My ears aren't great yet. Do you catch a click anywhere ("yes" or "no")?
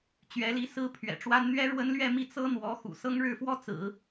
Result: no